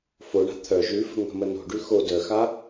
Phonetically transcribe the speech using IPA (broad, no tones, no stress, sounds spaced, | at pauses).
f o ɳ a̤ t̪ʰ œ ʒ ʉ f ə̤ ŋ ə̤ m ə n o̤ ɖ ʉ x o d œ x a